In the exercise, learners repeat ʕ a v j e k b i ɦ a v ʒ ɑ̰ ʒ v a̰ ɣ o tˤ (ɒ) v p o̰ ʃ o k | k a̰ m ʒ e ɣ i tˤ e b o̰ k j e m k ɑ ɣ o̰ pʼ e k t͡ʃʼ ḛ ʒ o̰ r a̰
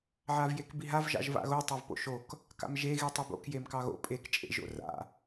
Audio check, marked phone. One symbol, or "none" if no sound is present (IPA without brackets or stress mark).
ɑ